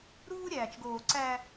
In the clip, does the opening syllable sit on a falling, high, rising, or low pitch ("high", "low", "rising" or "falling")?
high